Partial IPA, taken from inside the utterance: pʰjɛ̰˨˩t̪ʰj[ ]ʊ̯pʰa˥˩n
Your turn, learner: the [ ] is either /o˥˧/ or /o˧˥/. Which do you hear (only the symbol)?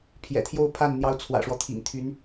o˥˧